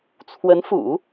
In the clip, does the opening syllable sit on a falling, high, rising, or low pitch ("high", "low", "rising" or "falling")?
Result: rising